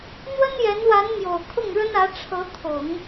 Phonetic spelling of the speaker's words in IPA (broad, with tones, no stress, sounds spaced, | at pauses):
n̪ w ə˥ n j ɛ˧˥ n w a˧˥ n m j o˨˩ ʊ̯ kʰ ʊ˥˩ ŋ ɻ ə˥ n ä˧˥ ʈ͡ʂʰ ɤ˧˥ t̪ʰ ʊ˨˩˦ ŋ